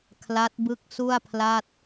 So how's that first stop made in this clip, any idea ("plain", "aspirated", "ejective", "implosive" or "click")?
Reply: aspirated